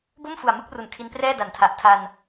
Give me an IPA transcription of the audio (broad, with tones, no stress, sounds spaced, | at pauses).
b o˥˩ m f u˨˩ a̯ m ɯ˥˩ k̚ r u˨˩ n kʰ i˧ n p r ɛː˥˩ d a˨˩ n tʰ a˨˩ ʔ tʰ a˧ n